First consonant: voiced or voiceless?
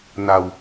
voiced